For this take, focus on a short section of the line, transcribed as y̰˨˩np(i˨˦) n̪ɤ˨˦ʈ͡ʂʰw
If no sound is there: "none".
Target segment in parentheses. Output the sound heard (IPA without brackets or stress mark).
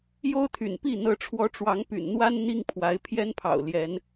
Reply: i˥˨